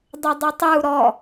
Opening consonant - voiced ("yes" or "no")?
yes